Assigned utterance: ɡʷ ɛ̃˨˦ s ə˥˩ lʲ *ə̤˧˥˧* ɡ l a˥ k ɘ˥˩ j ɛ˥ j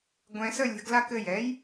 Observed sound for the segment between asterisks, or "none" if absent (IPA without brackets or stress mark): ə̤˧˥˧